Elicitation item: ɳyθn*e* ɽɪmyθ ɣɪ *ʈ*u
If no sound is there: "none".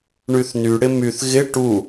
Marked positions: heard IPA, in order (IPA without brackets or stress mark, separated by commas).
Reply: y, ʈ